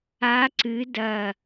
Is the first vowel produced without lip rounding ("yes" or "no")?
yes